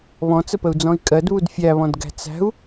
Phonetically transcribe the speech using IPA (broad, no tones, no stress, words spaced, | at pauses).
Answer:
βɔ̃t͡səpəu̯d͡zɔ̃i̯ kʼɜdβud fʲæβɔ̃dɡæ̤ t͡sæ̤u̯